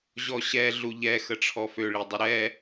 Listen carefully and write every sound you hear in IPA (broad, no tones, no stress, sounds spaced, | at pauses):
ʑ ɔ ɕ ɛ ɮ u ʎ ɛ x ə ʈ͡ʂʰ ɔ f ø ɭ i dˤ ə ɾ ɛ